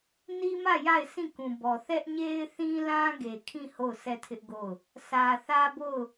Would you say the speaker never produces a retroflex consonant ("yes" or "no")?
yes